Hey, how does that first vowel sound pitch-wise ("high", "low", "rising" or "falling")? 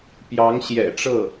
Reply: rising